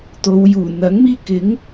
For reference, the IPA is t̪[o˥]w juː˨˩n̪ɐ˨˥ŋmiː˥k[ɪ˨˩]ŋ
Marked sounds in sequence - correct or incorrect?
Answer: incorrect: o˨˧, incorrect: ɪ˨˥

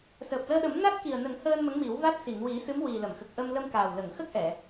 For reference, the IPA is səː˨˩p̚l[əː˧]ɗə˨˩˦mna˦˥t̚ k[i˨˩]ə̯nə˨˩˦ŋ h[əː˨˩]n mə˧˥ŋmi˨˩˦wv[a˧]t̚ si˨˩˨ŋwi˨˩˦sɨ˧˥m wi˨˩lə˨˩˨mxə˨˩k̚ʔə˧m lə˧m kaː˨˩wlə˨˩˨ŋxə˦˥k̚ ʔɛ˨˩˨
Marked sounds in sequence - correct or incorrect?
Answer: correct, correct, incorrect: əː˧, incorrect: a˦˥

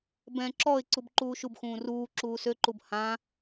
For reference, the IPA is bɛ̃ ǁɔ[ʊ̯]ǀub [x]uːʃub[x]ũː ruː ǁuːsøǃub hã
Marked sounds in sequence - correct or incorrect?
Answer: incorrect: ɪ̯, incorrect: ǃ, correct

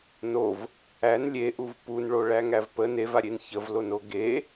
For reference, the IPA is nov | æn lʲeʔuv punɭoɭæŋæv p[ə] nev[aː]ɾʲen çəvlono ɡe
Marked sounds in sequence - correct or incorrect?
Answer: correct, incorrect: a

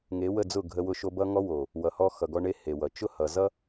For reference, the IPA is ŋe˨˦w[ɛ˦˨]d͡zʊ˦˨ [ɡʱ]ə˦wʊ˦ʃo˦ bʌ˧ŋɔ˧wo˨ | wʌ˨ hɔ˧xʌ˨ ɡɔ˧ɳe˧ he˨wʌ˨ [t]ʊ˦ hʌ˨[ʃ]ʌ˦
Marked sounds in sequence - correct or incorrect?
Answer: incorrect: ə˦˨, correct, incorrect: t͡ʃ, incorrect: z

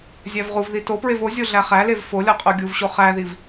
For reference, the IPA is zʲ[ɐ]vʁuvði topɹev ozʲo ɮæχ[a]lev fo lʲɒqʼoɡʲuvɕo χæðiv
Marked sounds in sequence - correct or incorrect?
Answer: incorrect: æ, incorrect: æ

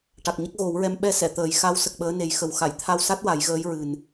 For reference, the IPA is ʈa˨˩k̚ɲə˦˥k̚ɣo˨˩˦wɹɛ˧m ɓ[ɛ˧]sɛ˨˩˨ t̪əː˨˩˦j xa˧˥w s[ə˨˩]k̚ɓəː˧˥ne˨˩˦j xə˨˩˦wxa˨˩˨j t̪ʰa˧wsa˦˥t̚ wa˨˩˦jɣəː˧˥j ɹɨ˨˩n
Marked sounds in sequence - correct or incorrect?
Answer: correct, correct

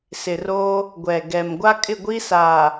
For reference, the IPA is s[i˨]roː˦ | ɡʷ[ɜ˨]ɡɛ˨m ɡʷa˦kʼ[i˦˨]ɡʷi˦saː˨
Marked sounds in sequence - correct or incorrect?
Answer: incorrect: ɪ˨, incorrect: ɛ˨, incorrect: ɪ˦˨

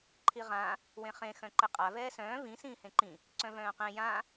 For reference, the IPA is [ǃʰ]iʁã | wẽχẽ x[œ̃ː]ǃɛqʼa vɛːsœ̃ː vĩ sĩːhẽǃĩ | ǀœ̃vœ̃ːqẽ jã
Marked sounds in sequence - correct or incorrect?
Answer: correct, incorrect: œ̃

